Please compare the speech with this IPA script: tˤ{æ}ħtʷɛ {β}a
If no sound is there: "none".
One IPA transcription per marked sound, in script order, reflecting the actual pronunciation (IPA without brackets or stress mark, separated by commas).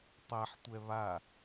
æ, β